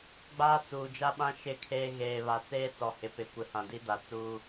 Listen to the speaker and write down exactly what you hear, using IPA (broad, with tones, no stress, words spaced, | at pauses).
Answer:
ɡ͡baː˦t͡suː˨d͡ʒa˦ɓã˦ ʃɪ˦˨kʰeː˦ ɣeː˨βa˨ t͡seː˦t͡sɔ˨hɪ˨pɪ˨ kʷɪ˨hã˨di˦da˨ t͡suː˦